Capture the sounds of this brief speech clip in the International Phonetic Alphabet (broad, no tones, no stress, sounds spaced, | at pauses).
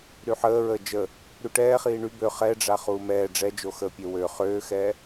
ɾ y ħ əː ɹ əː d͡ʒ ə | ɾ y ʈ ɛː χ iː ɳ y b ø χ ɛ ɖ͡ʐ a χ uː m ɛː ɖ͡ʐ ɛ d͡ʒ o x əː pʲ ø w ø χ øː x ɛ